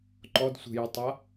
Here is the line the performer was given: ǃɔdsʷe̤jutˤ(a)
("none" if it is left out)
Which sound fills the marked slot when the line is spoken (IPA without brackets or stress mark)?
a